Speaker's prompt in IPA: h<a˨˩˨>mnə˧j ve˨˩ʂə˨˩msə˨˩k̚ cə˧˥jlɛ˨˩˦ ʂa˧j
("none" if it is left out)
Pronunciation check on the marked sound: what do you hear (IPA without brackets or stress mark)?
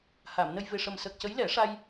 aː˨˩˨